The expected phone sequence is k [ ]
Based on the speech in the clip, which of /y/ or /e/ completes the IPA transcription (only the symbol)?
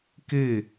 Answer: e